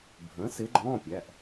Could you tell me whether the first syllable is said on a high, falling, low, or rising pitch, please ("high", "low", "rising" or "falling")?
rising